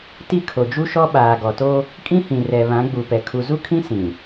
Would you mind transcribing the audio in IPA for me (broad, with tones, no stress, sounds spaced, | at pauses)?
t i˦˨ kʰ o˨ d͡ʒ u˦ ʃ ɔ˦ ɓ aː˨ ɡ ɔ˨ t oː˦ | kʼ ĩ˦ h ĩ˨ r ɛ˨ β ã˨˦ ɡ͡b u˨ p ɛ˨ kʰ u˨ z u˦ kʰ ĩ˦ s ĩ˨